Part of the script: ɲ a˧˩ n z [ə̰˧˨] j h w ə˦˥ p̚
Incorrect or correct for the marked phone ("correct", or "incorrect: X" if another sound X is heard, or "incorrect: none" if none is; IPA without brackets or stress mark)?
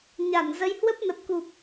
incorrect: ə˨˦